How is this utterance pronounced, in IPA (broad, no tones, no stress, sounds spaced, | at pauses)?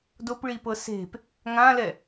d o p ɭ i p ɤ s e̤ p | ŋ ã l ɛ